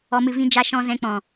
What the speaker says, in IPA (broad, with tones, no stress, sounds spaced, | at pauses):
ɔ˨ m ɨ˨ v ĩ˨ d͡ʒ a˨ ʃ ɔ̃˨ z ɛ̃˨ k͡p ɔ̃˨